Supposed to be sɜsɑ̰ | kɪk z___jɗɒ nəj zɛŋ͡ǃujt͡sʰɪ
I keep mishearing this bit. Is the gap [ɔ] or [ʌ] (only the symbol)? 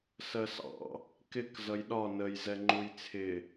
ʌ